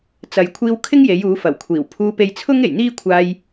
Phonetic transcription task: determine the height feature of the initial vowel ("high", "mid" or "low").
low